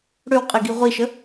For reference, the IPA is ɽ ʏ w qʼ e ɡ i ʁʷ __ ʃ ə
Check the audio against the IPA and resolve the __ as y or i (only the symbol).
i